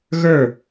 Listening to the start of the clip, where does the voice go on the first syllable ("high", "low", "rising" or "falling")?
falling